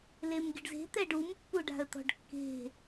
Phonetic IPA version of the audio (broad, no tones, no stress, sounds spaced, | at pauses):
l e m ɡʲ ə ɖ z e̤ t̪ ɛ ɖ u m pː u ɖ a̤ ə̯ t̪ ɔ̤ ɖ kː e̤